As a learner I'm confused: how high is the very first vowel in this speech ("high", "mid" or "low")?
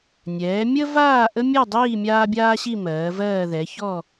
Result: mid